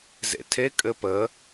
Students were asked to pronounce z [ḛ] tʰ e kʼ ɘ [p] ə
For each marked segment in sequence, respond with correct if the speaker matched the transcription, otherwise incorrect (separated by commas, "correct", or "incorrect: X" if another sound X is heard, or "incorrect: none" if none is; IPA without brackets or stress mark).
correct, correct